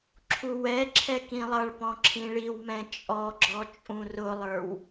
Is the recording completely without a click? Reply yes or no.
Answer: no